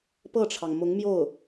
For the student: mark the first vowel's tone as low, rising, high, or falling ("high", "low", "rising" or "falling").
falling